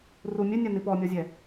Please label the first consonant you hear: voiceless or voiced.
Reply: voiced